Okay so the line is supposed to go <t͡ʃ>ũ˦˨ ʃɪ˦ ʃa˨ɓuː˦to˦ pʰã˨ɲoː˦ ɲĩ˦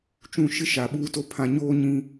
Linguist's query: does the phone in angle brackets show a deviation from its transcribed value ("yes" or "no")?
no